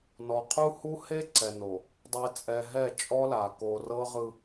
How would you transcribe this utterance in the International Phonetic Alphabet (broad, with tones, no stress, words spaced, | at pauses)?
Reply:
nɔ˨qʰu˦ hu˦he˦ǀɛ˨ no˨ | dˤe˨ t͡sʼɛ˨ɦɛ˦˨t͡ʃʼɔ˦la˨ ko˨rɤ˦ʁɯ˦